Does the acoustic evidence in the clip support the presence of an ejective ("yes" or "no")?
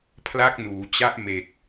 no